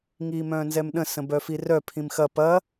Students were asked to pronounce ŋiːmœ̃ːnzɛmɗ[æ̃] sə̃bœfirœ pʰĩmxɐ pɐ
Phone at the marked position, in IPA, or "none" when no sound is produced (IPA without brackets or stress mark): ə̃